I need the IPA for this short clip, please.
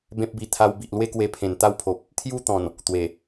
b ẽ˦ p̚ b i˧ t̪ʰ a˧ w b i˨ ʔ l w e˦ k w e˧ pʰ ẽ˨˩ n t̪ a˦ w pʰ o˨ p̚ | t̪ʰ j u˦ t̪ ɔ̃˨˩ n | t̪ w e˨˩

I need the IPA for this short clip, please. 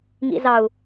ŋ ḭ z ɑ u̯

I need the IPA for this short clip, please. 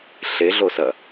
ɬ e ɮ o s ɐ

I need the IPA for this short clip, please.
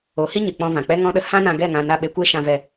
o˨˦ h i˦ ɲ ɨ˨ k͡p ɔ̃˧ v ã˨ k͡p ɛ˦ ŋ ɔ̃˦ ɗ ə˧ h ã˦ n ã˧ ɡ ɛ˦˨ ŋ ã˧ n a˦˨ ɓ e˧ kʷ e˦ ʃ ã˧ v ɛ˧

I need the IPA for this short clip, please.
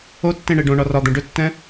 o tː ẽ ɳ e ɖ õ ɳ ɒ r ɒ d̪ ɛ̃ ɖ ɵ tː ɛ̃

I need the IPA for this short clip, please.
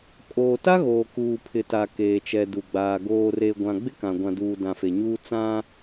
kʼ oː˨ t a˦ ɣ oː˨ k uː˨ pʰ ɪ˨ t a˨ k eː˨ t͡ʃ ɛ˨ d u˨ ɡ͡b aː˨ ɡ oː˨ r e˨ ɡʷ ã˨ ɡ͡b ɪ˦ k ã˨ ɡʷ ã˨ d uː˨ d ã˨ f e˨ ɲ uː˦ t͡s ã˦

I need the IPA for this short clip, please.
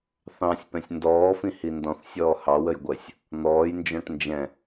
θ ɑ̃ sʲ p ɛ̃ sʲ n d ɔː f ĩ h i n d ɔ̃ θ sʲ ɔː h ɑ w ə j ɡʷ ɜ sʲ | n̪ ɔː j n d͡ʒ ɔ̃ ʈ n d͡ʒ ɛ̃

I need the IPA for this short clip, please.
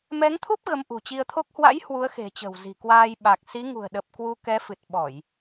m ɛ˨˦ ŋ t̪ʰ u˦˥ p̚ ɣ ə˨˦ m ʔ ṳ˨˩ t͡ɕ i˧ ə̯ t̪ʰ o˦˥ k̚ h w a̰˧˥ j h w u˨˦ ə̯ x e̤˨˩ t͡ɕ ə̤˨˩ w z i̤˨˩ k w aː˧ j ɓ a˨˩ k̚ s i˨˦ ŋ ṳ˨˩ ə̯ ɗ ə˨˩ p̚ k w u˧ k ɛ˨˦ f ɨ˨˩ t̚ ɓ ɔ˧˩˨ j

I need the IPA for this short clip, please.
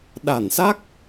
ɗ a˧˩ n s a˦˥ k̚

